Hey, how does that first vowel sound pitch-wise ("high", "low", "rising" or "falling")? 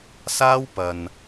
high